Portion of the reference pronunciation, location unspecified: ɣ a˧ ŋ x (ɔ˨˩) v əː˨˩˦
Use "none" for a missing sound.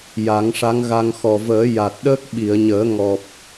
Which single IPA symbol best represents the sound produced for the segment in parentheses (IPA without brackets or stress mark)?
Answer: ɔ˨˩